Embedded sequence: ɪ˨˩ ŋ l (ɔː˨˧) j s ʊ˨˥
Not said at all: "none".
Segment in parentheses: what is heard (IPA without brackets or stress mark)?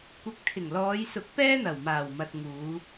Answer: ɔː˨˧